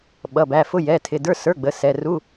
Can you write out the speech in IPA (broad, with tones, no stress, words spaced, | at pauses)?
ɓʌ˩˧˩bæ˩˧˩fʊ˧˥˧ jɛ˩˧˩tʰɪ˩˧˩də˞˧˥˧ sə˞˧˥˧ɡ͡bə˩˧˩sɛ˩˧˩ ru˧˥˧